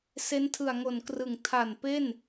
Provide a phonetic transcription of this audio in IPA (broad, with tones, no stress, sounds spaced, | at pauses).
s e˦˥ n tʰ ɯ˨˩ a̯ ŋ o˨˩ n k r ɯ˨˩ ŋ tʰ a˨˩ n p e˥˩ n